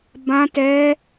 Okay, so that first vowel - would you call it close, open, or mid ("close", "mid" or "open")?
open